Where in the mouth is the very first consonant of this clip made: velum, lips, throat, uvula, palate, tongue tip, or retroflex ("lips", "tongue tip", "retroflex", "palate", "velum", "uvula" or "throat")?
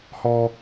throat